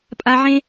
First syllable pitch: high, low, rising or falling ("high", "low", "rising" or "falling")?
low